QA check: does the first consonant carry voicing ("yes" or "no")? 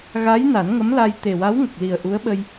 yes